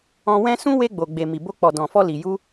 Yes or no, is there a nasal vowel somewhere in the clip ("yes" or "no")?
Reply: yes